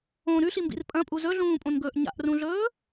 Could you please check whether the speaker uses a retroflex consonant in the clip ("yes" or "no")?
no